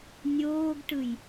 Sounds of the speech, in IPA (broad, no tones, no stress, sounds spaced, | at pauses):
nʲ oː ɡ ʈ ɯ j